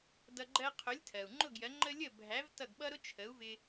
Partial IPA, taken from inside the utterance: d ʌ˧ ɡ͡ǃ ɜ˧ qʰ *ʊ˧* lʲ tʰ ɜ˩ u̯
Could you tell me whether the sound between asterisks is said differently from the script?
yes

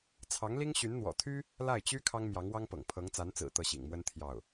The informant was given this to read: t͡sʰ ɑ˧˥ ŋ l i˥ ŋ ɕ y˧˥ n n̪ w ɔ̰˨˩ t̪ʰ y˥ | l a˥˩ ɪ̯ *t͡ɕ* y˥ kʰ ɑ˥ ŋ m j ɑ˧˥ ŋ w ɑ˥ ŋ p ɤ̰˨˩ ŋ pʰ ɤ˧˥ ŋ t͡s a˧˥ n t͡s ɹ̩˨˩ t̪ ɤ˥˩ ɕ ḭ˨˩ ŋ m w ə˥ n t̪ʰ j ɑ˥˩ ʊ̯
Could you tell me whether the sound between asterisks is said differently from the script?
no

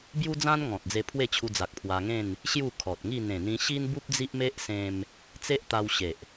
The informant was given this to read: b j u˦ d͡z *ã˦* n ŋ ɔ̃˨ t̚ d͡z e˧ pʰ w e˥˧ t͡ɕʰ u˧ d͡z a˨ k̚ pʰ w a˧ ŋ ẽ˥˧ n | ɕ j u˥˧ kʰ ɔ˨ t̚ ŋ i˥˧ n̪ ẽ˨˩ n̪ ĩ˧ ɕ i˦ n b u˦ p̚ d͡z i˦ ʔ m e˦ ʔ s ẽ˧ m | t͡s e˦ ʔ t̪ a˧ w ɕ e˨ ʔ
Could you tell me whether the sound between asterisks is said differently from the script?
no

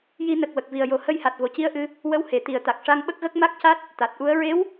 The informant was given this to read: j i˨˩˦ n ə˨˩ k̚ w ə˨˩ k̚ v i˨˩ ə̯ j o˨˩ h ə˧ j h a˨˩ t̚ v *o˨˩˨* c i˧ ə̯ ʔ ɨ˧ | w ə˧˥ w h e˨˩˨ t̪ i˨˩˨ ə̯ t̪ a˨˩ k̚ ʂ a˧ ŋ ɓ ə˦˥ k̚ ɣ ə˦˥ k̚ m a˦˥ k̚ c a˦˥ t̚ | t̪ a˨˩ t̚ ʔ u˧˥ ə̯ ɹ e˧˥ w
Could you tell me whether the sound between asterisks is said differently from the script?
no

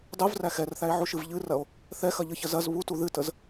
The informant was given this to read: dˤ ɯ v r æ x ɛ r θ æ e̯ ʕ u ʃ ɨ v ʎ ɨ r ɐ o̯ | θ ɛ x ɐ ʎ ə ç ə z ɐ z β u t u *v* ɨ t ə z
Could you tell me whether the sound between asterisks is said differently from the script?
yes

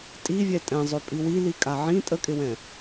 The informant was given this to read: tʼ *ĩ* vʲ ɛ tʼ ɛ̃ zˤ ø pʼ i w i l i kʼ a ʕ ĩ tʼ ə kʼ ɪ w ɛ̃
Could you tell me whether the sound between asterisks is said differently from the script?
yes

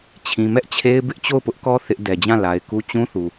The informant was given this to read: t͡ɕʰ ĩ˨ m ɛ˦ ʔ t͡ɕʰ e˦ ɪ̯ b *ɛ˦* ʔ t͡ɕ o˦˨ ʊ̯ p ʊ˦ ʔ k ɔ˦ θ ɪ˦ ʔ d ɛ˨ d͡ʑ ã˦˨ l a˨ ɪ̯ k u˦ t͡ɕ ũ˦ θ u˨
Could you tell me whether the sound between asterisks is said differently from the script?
yes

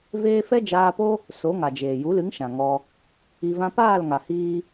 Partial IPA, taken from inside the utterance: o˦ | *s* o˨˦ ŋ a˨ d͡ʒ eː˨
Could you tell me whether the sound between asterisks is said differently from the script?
no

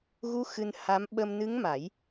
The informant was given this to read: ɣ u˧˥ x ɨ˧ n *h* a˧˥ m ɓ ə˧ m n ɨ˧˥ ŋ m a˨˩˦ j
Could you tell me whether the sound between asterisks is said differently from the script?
no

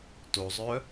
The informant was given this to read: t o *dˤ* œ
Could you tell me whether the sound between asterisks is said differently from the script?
yes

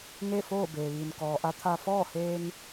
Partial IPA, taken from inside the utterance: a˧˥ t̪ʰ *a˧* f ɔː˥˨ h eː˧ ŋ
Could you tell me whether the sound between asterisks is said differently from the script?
no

